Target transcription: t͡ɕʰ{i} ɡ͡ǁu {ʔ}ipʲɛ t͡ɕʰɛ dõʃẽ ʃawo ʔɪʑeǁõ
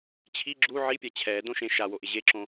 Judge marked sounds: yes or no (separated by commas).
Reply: yes, no